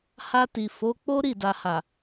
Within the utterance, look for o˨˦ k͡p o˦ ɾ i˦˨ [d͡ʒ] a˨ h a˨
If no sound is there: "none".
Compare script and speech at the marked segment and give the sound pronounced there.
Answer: d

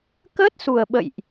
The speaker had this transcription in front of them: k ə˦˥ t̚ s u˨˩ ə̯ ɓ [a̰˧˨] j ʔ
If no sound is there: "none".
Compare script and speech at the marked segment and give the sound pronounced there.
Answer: ə̰˧˨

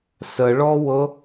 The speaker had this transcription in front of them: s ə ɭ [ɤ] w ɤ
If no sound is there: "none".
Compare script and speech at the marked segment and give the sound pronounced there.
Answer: ɔ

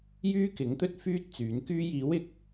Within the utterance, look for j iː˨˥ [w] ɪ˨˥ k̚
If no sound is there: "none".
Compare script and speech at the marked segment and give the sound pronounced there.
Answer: w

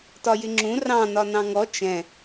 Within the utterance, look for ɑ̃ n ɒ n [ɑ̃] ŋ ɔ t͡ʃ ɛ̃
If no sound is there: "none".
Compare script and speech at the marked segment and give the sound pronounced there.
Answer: ɑ̃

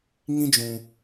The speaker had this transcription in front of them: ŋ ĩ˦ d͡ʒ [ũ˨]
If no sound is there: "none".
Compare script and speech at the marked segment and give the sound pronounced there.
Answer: ũ˨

